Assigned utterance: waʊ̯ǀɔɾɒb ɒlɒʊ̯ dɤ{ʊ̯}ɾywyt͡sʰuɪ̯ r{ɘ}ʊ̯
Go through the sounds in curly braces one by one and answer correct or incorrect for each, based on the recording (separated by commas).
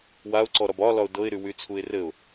incorrect, correct